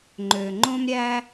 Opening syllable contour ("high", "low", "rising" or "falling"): low